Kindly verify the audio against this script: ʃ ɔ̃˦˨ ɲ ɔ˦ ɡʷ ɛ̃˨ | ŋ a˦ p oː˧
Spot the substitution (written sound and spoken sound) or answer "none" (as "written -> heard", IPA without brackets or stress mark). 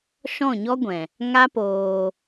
none